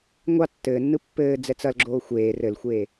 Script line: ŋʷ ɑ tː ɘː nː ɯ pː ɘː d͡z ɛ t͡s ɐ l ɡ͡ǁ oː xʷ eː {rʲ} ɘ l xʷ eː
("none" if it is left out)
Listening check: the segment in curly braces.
r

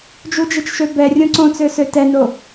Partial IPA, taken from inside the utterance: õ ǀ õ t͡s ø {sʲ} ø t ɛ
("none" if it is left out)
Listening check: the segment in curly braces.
s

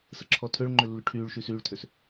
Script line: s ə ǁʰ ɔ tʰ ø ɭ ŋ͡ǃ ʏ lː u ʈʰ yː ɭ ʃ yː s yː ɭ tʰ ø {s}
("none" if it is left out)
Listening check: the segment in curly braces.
s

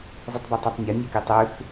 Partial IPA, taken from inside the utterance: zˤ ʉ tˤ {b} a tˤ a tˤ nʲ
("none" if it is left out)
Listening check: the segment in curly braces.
b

